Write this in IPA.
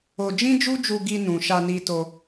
o˧ d͡ʒ ĩ˦ d͡ʒ u˦ d͡ʒ u˧ ɡ i˧ n ũ˨ ʃ a˧ n i˧ t o˧

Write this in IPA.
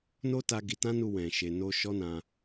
n o˦ t a˧ ɡ i˧ t ã˦ n u˧ w ɛ̃˨ ʃ e˨ n o˧ ʃ ɔ˦ n ã˧

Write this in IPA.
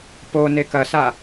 p o n e k ɐ s a

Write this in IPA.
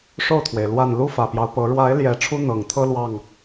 ʂ o˥˨ ʊ̯ t̪ʰ w e˩ ɪ̯ l w a˨˩ n l u˦ f ä˨˩ p j ɑ˦ ʊ̯ p ɤ˨˦ ɻ w a˨˦ ɪ̯ l j ɛ˨˩ ʈ͡ʂʰ u˦ n̪ ɤ˨˩ ŋ t̪ʰ ɤ˦ l w ɑ˥˨ ŋ

